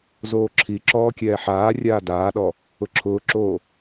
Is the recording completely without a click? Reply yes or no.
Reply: no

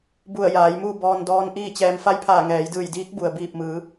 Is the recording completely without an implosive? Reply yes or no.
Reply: yes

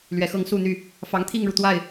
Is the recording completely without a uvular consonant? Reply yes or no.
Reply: yes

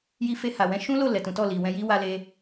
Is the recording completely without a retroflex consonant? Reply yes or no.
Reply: yes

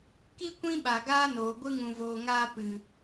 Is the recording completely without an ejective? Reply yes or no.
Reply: yes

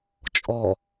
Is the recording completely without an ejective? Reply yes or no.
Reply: no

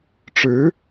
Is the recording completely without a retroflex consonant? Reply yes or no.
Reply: no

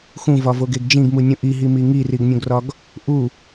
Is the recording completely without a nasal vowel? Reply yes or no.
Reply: no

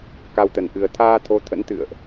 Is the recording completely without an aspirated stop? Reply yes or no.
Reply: no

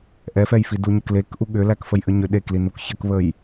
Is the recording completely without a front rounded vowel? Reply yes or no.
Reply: no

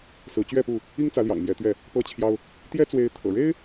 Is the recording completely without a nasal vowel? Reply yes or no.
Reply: yes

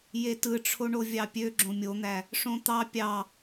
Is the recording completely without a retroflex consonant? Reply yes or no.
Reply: no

